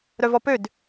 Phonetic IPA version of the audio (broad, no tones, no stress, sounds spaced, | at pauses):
ɾ œ v ɔ p ø d